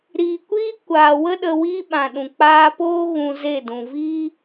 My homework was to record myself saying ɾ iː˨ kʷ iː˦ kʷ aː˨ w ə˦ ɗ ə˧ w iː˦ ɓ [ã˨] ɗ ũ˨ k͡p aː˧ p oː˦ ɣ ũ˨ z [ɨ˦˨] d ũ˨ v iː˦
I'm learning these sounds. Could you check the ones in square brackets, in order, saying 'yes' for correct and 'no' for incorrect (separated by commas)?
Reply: yes, no